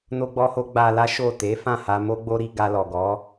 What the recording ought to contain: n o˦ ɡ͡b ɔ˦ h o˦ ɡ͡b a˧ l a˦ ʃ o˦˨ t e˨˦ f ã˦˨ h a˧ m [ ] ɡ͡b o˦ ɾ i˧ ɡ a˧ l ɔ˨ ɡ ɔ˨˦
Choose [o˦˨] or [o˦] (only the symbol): o˦